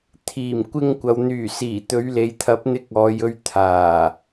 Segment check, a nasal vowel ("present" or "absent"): absent